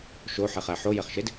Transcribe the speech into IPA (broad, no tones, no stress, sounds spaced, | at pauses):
ʃ o ħ e χ æ ħ o j e χ ʃ e d